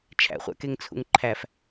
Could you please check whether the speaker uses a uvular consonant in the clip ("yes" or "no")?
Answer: yes